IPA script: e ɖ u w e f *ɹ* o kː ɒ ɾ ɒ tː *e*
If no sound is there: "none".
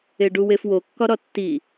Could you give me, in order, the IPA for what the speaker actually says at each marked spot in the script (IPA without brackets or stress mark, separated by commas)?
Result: w, i